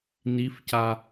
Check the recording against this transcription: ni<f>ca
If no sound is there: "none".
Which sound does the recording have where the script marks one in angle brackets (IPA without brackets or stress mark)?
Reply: f